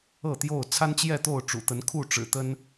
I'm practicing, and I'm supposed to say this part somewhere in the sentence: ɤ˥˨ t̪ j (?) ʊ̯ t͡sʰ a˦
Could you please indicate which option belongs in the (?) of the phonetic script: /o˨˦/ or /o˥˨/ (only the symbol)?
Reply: o˥˨